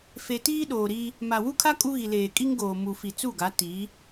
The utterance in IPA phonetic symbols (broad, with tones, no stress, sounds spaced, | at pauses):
f e˨ t iː˦ ɗ oː˨ ɾ i˦ | m a˨ w u˦ kʰ a˦ kʼ u˦ ɣ i˨ l eː˨ kʼ i˦ ŋ ɡ oː˨ m u˨ f i˨ t͡s u˦˨ ɡ a˨˦ t i˨˦